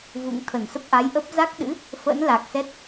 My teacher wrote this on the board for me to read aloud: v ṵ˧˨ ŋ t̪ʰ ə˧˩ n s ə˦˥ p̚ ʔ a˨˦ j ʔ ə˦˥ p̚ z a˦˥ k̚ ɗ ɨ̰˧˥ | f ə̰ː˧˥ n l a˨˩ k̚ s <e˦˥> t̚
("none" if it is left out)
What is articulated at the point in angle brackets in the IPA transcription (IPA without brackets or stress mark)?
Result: ɛ˦˥